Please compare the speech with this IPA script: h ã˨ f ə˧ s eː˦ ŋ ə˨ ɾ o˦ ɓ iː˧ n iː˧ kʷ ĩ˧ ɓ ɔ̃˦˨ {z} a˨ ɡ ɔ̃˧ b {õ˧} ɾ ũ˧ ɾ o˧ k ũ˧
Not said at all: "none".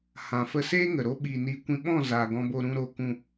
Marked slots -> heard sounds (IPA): z, o˧

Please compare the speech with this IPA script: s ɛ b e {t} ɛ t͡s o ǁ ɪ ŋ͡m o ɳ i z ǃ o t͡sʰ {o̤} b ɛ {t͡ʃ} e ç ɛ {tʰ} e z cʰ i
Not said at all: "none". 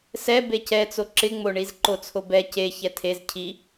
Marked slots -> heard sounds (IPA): c, o, c, tʰ

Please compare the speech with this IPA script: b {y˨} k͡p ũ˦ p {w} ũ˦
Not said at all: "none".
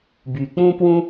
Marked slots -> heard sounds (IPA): y˨, w

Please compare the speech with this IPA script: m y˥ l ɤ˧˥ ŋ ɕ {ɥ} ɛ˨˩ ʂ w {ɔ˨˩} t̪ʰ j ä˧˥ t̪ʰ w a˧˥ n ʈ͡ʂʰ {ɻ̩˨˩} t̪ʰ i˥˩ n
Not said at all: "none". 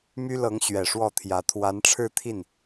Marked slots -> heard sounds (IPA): ɥ, ɔ˥˩, ɻ̩˥˧

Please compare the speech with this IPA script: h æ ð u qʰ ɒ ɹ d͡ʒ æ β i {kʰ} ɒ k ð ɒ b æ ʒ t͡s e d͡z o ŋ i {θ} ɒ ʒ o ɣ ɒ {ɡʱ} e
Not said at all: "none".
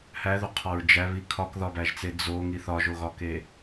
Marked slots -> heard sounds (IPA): kʰ, θ, k

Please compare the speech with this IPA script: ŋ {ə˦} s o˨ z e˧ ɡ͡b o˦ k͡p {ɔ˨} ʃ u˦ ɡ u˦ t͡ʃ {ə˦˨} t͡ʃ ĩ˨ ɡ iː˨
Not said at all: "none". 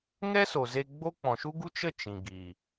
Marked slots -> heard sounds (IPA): ɛ˦, ɔ̃˨, ə˦˨

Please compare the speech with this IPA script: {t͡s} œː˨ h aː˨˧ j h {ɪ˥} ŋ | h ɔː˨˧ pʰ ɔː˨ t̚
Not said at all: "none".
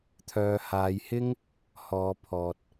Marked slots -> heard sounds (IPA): t̪ʰ, ɪ˥

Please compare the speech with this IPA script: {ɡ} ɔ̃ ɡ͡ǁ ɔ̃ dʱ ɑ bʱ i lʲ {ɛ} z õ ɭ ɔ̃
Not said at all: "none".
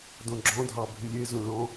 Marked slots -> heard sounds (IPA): d, e

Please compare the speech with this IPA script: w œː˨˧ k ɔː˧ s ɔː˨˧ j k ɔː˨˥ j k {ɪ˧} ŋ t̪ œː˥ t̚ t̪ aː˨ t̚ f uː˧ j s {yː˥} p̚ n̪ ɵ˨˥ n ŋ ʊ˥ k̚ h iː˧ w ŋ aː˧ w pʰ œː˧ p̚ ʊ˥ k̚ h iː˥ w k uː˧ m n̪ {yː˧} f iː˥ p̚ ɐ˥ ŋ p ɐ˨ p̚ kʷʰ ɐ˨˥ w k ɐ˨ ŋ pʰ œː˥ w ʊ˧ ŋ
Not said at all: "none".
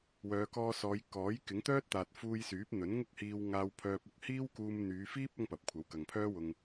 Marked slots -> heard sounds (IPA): ɪ˨˥, yː˨˥, yː˨˧

